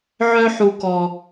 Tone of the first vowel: high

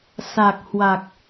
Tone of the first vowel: low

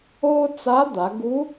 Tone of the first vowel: high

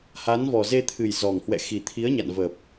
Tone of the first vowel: rising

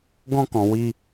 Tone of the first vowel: high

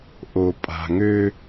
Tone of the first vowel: low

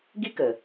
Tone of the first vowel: high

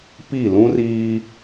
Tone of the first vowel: falling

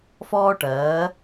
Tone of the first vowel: high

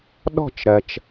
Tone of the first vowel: falling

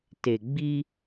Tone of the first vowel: low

